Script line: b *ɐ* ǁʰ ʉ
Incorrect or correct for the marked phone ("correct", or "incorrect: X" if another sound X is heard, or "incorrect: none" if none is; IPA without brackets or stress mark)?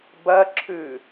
correct